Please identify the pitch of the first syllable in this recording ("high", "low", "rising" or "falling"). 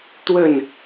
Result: falling